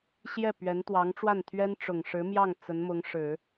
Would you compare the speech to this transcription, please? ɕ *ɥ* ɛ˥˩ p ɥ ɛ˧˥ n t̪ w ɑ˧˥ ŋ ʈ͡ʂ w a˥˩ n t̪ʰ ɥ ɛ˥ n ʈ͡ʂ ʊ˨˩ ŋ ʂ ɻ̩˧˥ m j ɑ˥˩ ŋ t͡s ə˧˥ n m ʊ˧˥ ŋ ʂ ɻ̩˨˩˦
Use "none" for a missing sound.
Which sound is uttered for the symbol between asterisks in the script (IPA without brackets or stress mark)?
j